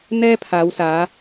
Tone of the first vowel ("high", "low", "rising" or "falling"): high